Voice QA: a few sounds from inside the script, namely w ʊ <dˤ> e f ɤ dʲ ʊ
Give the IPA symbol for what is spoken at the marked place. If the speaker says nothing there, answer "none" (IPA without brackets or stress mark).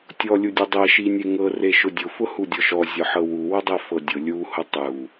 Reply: dˤ